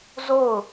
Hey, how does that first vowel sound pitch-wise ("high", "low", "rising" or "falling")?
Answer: falling